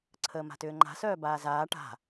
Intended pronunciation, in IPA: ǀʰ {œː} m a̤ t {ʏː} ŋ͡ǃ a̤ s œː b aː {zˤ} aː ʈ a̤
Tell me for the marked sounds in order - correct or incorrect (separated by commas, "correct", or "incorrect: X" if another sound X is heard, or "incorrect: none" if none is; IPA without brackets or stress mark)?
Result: incorrect: əː, correct, incorrect: z